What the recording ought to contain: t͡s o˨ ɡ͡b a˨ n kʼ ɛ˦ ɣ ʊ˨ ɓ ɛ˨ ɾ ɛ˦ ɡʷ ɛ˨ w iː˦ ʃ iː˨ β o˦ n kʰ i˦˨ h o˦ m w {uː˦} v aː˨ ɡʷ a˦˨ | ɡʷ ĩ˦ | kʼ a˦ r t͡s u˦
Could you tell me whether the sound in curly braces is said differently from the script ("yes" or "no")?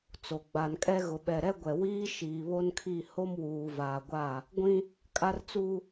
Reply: yes